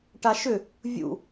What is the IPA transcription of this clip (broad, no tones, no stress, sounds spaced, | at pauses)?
ʈ a ʃ ʏ | vʲ ṵ